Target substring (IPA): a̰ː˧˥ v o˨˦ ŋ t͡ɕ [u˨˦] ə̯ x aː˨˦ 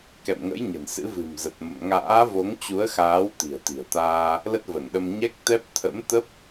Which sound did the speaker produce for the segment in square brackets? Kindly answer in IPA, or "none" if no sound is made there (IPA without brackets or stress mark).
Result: u˨˦